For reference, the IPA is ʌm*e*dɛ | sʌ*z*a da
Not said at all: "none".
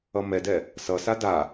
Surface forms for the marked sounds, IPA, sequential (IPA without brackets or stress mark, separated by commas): ɛ, s